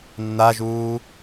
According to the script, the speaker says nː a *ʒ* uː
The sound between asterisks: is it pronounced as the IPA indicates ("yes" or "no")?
yes